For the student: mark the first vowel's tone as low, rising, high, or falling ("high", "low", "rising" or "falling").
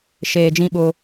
low